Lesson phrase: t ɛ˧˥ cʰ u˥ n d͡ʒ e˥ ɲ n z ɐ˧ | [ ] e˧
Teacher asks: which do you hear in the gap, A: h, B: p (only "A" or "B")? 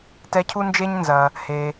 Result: A